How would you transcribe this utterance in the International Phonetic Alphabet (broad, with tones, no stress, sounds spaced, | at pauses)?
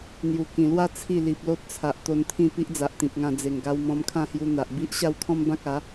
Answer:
n̪ j u˨˩ k ĩ˨˩ l w a˥˧ t͡sʰ i˥˧ l i˨ p̚ l o˦ t̚ t͡sʰ a˨ ʔ t̪ o˧ n t̪ʰ ĩ˥˧ p i˦ ʔ d͡z a˨ ʔ t̪ ĩ˨ p̚ ŋ ã˧ d͡z e˨˩ ŋ ɡ a˧ w m ɔ̃˧ m kʰ ã˥˧ h j u˧ n̪ a˨ ʔ b i˦ ʔ ɕ a˥˧ w kʰ ɔ̃˦ m b ã˦ k̚ a˨˦